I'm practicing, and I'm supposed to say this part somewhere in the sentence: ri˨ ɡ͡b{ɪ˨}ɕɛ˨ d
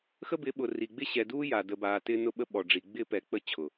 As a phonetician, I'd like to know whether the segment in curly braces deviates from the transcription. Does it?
yes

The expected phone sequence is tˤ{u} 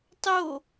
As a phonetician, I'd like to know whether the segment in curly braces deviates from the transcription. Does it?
yes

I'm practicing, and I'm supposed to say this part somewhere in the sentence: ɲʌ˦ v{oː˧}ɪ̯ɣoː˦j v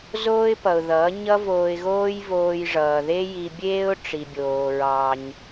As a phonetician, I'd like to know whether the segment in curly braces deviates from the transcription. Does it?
no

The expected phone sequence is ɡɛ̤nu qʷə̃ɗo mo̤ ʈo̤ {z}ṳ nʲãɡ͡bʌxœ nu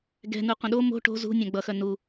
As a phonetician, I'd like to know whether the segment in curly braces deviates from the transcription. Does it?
no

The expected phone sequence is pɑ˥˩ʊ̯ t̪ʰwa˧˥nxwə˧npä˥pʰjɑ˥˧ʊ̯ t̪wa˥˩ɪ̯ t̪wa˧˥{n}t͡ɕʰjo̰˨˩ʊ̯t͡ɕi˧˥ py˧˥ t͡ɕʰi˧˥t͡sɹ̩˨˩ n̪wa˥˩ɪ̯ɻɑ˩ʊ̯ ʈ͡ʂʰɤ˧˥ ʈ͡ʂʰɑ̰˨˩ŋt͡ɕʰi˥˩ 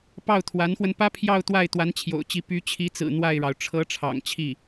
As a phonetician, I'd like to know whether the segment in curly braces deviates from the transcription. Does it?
no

